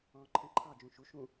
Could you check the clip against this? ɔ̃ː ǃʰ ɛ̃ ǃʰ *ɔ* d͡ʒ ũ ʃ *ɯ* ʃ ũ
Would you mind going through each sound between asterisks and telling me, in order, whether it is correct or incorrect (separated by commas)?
incorrect, incorrect